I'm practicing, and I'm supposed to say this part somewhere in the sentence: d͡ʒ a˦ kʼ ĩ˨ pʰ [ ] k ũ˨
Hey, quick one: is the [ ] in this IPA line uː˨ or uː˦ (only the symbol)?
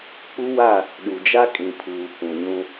uː˨